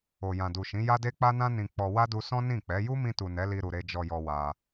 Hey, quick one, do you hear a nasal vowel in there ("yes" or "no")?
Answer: yes